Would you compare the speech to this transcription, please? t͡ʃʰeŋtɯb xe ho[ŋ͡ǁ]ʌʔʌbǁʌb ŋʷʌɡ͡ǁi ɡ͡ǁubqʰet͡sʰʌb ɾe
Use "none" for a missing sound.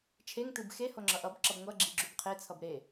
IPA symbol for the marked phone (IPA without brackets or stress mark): ŋ͡ǁ